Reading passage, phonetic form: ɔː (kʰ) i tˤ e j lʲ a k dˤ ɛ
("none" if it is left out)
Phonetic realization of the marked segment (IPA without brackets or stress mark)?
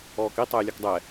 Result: k